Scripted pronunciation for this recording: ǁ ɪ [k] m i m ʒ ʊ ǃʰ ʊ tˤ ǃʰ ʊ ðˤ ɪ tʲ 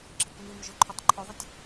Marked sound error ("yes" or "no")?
no